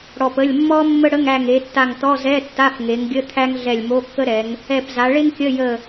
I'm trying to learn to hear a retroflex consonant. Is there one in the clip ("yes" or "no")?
yes